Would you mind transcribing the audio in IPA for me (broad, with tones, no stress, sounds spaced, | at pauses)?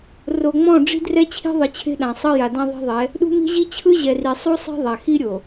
r o˨ ŋ͡m ɔ̃˦˨ ɖ͡ʐ i̤˦ d r ɛ˦ t͡ɕʰ i̤˦ ðˤ ɯ˨ t͡ɕʰ e̤˦ ɗ ã˨ sˤ ɤ˦ j a˨ d ã˦ ðˤ e̤˦ ðˤ ɛ˨˦ | ɗ ṳ˦ m i̤˦ ʑ i˦ t͡ɕʰ ɯ˦ ʑ ɛ˨ r i˨ sˤ u˦ sˤ e̤˦ ðˤ a˨ x i˦ ɾʲ o˨